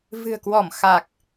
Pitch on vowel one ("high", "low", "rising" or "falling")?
low